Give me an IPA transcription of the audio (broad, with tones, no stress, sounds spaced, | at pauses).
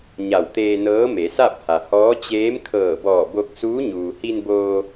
ɲ a˧˩ w t̪ eː˧ n ɤː˧˥ m e˩˧ s a˥˨ p̚ h a˩ h ɔː˧˥ t͡ɕ eː˧˥ m kʰ ɤː˧˩ b ɔː˧˩ b o˧ k̚ s uː˧˥ ɲ uː˩ h i˧ n b oː˧